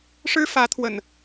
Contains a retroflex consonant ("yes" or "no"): yes